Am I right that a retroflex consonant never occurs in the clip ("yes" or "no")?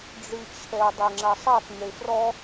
no